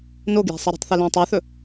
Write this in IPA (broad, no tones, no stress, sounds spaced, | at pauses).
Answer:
n o ɡ j e̤ sˤ ɨ ɾ ə̤ tˤ θ ɨ l õ tˤ e θ ɵ